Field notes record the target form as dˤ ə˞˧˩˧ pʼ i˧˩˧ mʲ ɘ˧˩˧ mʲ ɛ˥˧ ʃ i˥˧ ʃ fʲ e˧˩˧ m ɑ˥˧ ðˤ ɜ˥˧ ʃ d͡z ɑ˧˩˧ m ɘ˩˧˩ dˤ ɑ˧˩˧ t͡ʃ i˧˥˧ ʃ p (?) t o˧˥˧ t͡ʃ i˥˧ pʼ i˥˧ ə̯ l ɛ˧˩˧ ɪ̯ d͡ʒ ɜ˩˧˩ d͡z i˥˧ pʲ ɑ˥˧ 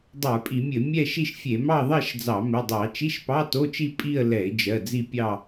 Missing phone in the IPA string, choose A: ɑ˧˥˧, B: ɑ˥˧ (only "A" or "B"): A